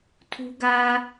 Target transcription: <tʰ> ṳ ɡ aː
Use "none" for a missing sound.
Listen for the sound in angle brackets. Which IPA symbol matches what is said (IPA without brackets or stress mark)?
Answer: tʰ